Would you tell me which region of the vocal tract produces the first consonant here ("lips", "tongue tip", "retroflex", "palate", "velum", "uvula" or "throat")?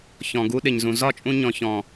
palate